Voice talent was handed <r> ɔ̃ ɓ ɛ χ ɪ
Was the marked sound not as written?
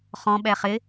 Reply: yes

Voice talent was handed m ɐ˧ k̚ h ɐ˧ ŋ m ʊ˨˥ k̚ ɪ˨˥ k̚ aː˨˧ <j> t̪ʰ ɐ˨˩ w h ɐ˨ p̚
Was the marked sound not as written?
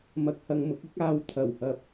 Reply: yes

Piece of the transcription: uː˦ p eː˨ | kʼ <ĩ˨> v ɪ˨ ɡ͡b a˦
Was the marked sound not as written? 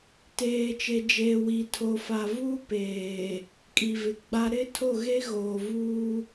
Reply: yes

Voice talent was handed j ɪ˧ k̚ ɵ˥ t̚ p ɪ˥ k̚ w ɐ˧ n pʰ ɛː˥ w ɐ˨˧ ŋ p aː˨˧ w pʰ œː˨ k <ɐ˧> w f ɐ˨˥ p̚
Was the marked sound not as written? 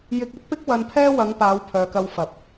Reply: no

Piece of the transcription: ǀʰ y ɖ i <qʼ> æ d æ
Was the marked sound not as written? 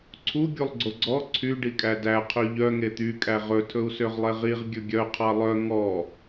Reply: yes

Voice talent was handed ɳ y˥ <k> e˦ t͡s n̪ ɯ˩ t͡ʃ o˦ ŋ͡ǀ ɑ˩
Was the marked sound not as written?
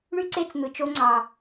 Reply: yes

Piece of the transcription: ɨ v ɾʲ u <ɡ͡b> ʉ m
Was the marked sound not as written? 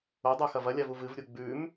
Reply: no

